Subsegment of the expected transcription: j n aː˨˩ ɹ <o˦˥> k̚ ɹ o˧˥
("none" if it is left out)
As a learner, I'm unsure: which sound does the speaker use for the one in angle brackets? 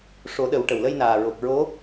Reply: o˨˩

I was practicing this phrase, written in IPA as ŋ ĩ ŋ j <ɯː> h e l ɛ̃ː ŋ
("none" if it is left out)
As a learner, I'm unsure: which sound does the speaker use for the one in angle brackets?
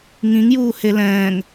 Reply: uː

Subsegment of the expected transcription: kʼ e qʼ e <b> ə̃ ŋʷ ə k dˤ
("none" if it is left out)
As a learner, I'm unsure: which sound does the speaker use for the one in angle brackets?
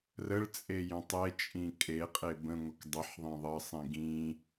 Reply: b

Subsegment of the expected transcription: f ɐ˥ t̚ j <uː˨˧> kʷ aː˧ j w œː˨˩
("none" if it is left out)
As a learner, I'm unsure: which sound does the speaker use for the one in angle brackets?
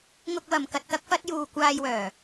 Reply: uː˧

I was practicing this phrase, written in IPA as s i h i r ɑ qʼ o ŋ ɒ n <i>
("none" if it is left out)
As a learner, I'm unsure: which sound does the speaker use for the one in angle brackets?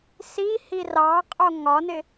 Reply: ɪ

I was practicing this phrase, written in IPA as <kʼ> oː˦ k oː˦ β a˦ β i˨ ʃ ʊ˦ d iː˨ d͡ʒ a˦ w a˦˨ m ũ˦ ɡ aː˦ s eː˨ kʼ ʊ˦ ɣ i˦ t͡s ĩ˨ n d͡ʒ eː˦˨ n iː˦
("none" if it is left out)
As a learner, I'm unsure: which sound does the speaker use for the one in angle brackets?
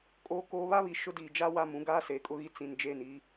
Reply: kʼ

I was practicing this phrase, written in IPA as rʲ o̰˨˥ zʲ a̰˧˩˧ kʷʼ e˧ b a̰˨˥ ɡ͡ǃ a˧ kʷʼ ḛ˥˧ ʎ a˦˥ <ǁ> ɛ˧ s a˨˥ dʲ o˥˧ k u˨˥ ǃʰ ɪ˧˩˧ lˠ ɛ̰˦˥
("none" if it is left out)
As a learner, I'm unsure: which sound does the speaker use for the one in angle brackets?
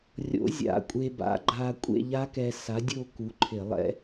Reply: k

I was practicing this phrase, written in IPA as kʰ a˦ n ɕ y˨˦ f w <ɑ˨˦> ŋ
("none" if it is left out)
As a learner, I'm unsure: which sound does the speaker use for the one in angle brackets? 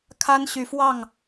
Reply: ɑ˥˨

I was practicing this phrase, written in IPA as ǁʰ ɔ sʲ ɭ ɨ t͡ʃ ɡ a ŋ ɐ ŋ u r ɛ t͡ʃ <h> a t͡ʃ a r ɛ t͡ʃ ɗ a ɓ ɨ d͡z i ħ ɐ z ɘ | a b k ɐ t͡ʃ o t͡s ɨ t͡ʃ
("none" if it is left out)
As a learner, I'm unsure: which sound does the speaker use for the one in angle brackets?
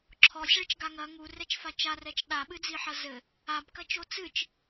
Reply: f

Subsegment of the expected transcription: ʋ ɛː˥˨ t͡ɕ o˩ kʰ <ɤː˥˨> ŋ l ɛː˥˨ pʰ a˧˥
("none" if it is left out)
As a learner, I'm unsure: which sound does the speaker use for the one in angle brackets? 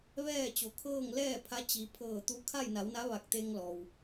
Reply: ɤː˥˨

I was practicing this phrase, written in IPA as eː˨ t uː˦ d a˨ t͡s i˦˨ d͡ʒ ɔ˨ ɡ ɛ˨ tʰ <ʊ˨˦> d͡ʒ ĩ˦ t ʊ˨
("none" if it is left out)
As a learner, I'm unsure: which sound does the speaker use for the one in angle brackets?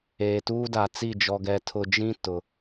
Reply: ʊ˨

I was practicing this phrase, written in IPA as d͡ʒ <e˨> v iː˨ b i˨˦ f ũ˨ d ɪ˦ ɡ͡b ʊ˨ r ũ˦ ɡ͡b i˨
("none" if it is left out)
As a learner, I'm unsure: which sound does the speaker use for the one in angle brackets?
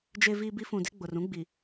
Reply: e˨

